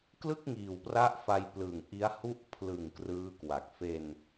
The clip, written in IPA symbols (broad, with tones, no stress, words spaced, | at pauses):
klɯ˥˩k̚ŋiː˨˩wpra˦˥ʔ fa˧jplɯː˨˩ŋ ʔi˦˥a̯hu˥˩ʔ pʰlɯ˨˩ŋ krɯː˦˥kwa˨˩k̚ fe˧n